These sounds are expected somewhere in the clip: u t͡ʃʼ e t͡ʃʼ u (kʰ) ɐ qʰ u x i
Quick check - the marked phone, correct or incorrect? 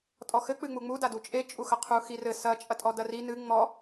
incorrect